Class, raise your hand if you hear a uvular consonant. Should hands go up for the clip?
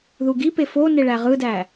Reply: yes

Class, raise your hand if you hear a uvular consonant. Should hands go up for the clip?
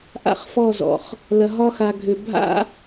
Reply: yes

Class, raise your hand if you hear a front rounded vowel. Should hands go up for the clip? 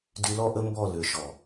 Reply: yes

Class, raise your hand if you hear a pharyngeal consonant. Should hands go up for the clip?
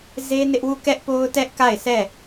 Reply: no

